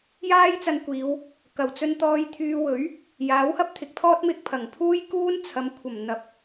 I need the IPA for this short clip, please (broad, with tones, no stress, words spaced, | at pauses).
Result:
jaː˥jt͡sɐ˧nkʷiː˨˧w | kɐ˨˩wt͡sɵ˧nt̪ɔː˧jt̪ʰyː˧ wɵ˨˥ɥ | jaː˨˥whɐ˥p̚t̪ʰɪ˨k̚t̪ʰɔː˥t̚ mɪ˧k̚pʰɐ˨˩ŋpʰuː˥j kuː˥nt͡sʰɐ˨˥mkʷʰɐ˨˩m n̪ɐ˨˥p̚